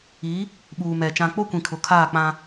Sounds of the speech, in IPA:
i˨˦ | ɓuː˨mɛ˨ t͡ʃã˨k͡po˦kʷĩ˨ kʰʊ˨kʰaː˦˨k͡pã˦

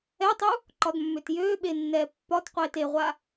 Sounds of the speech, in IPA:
ɛtˤu | ǃɒdmːøtjøːɓe nːɛːpːɒtqʷeːt eʁʷa

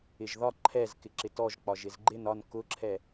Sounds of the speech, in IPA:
ɪʒðɒ ǃʰɛz kɪǁɪtɔʒ k͡pɒʒɪzɡ͡ǃɪn ɒn kʊǁʰɛ

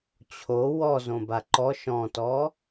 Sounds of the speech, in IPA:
t͡ɕʰo wɔzõba ǃɔʃ ɔ̃tɔ

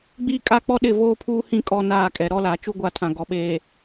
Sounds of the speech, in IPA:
ɡ͡biː˦kʼa˦k͡pɔ˦ɗɪ˦˨ voː˦pʰuː˦hĩ˦˨ kʼɔ˦naː˦˨ kʼɛ˨ɾɔ˦la˨˦ t͡ʃu˦ɡʷa˦˨tʰã˨ ɡɔ˨ɓeː˨

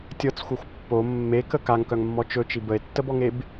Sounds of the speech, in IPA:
tʲɤt͡sxʷɤxʷ pːo mːekə kaŋkœŋmːɔ t͡ʃɵt͡ʃi bəe̯tːəbɔŋeb

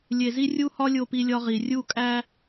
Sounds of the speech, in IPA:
lʲe˨zi˦rʲu˦hɒ˦ lʲo˦pi˦lʲɒ˦ʁi˨ rʲu˦˨ kʼæ˦

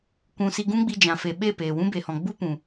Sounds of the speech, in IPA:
kʷũ˧ si˧ɡũ˦ɡ͡bi˧ d͡ʒã˨fe˨ ɓe˦˨peː˨wũ˦ be˨hɔ̃˨ ɡ͡bu˦ pũ˨

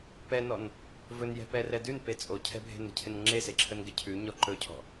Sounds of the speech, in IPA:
pɛnɔn | vɵnjɛ̤pɛ rɛdʉn pet͡sʼocʰɛ̤bʱe̤n ə̤cʰɪnŋ͡ǁese ǁʰənɡɪcʰʉ ɲɔǃɵcʰɔ̤

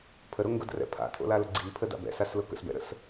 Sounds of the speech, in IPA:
pʰəɾoŋɡʊdrɛ̰ pʰa̰tʰo̰lalə ɡ͡ǀipʰəda̰b ɛ̰saslʊ kə̰sbɛ̰ɾə̰s

